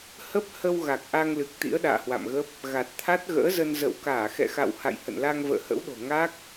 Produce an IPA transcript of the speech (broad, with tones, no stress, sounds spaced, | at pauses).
h ə˦˥ p̚ h ə˧ w ɣ a˨˩ k̚ ʔ a˧ ŋ l ɨ˨˩ k̚ t̪ ḭ˧˥ ə̯ ɗ a̰ː˧˨ h w a̰˧˨ m ɣ ə˦˥ p̚ | ɣ a˨˩ t̚ t̪ʰ a˦˥ t̚ ɣ ə̰ː˧˥ z ə˧ n z ə̰˧˨ w k aː˧˩ x ɛ̰˧˨ x a̰˧˨ w h a̰˧˨ j h ə̰˧˨ n l a˧ ŋ v ə̰ː˧˨ h ə̰˧˥ w ɗ o̤˨˩ ŋ a˦˥ k̚